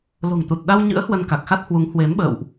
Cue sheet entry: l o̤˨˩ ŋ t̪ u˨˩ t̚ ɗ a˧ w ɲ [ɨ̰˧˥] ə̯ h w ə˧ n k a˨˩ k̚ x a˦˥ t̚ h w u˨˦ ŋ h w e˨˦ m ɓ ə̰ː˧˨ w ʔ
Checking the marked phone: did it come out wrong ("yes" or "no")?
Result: no